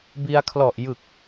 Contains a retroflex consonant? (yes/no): no